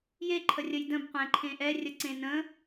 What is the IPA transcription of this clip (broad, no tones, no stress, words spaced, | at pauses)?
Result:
jeǃʰərʲəj də̃bqʷɛ̃ǃʰẽ ʔɛrʲəǀẽ nə̃